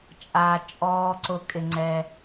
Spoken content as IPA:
t͡ʃʼ aː˨ t͡ʃʼ ɔː˧ ǀ ʊ˧ kʼ ɪ˧ ŋ͡ǀ ɛː˧

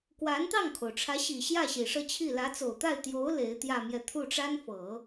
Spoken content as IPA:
k w a˧˥ n t̪ ɑ˥˩ ŋ kʰ o˩ ʊ̯ ʈ͡ʂʰ ä˧˥ ɕ i˨˩ ɕ j ä˥˩ ɕ i˨˩ ʂ ɤ˥˧ t͡ɕʰ i˥˩ l ä˧˥ t͡s o˨˩ ʊ̯ t̪ a˥˩ ɪ̯ t̪ j o˧˥ ʊ̯ l e˧˥ ɪ̯ t̪ j ä˥˧ m j ɛ˥˧ t̪ʰ u˥˩ ʈ͡ʂ a˥ n f ɤ˨˩˦

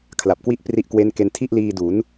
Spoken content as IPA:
kʰ l a˨˩ p̚ k w i˥˩ ʔ p r i˦˥ ʔ k w e˦˥ n k e˧ n tʰ i˥˩ ʔ l iː˧ d u˩˦ n

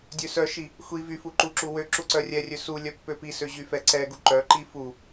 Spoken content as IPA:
dʲ ø s œ ʃ i | xʷ i v y f u ǃ u ǁ u w ø ǁ u ǀ œ rʲ ɛ rʲ ø s u lʲ œ pː ø p i s ø ʑ y f ɛ ǀ ɛ ɡ u ǃ œ ǃ i f u

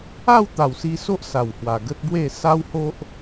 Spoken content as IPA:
a˥˧ w t̪ a˨˩ w s i˧ s o˦ ʔ s a˨˩ w h w a˨˩ ɡ ə˦ t̚ b w e˥˧ s a˦ w h o˦ ʔ

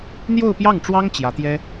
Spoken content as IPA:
n̪ j o˥˧ ʊ̯ p j ɑ˥˩ ŋ ʈ͡ʂ w ɑ˥ ŋ t͡ɕ j ä˧˥ t̪ j ɛ˥

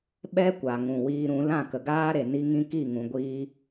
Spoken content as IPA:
ɓ ɛ˦ kʷ a˨ ŋ ũ˨ w iː˧ ɾ ũ˨˦ l ã˦˨ k ə˨ ɡ aː˦ ɾ e˨ n i˧ ŋ ĩ˧ k i˦˨ ŋ ũ˨ ɡʷ iː˧

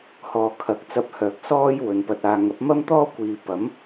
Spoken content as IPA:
h ɔː˨ kʰ ɐ˨˥ k̚ t͡s ɐ˧ p̚ h œː˨ k̚ s ɔː˥ j w ɵ˨˧ n p ɐ˧ t̚ aː˧ ŋ ɐ˨˥ p̚ m ɐ˥ m t̪ ɔː˥ kʷ iː˨ p ɐ˨˥ m

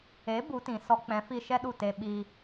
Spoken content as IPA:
e˨˦ b u˨˦ t ĩ˨ s ɔ˦ k͡p ɛ̃˨˦ f i˧ ʃ ɛ˦ ɗ u˦˨ t e˧ ɓ i˧

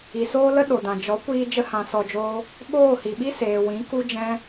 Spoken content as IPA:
i˨ s oː˦ l ə˦ ɗ o˨ d ã˨ d͡ʒ ɔ˨˦ kʷ iː˧ d͡ʒ ə˦ h ã˧ s ɔ˧ d͡ʒ oː˦ | ɓ oː˦˨ h i˨ ɓ i˦ s eː˨ w ĩ˨˦ k u˦ d͡ʒ ɛ̃˦

